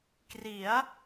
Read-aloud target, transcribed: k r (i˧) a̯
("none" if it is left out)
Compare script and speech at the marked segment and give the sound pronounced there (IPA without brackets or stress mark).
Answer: i˩˦